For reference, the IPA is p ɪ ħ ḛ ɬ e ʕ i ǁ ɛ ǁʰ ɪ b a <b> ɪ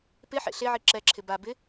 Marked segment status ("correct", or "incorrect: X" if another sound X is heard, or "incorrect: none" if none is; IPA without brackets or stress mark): correct